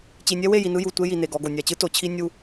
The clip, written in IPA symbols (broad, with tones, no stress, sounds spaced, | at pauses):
t͡ɕ i˨ nʲ ɛ˦ w e˦˨ j i˨ n ɯ˦ j u˨ tʷ e˦ j i˨ n e˨ ɡ ɔ˨ ɡ o˨ nʲ a˨ t͡ɕ ɯ˦ t o˨ t͡ɕʰ i˦ nʲ u˦